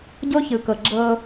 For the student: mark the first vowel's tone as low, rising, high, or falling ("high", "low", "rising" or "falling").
high